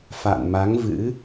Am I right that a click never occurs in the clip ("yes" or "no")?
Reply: yes